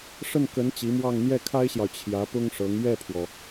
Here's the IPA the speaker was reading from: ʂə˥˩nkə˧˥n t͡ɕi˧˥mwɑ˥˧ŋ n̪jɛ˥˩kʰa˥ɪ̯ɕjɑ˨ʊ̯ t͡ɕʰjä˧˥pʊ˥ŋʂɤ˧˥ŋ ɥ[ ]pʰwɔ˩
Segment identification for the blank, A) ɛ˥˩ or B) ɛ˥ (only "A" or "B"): A